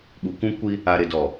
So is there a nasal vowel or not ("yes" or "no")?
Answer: yes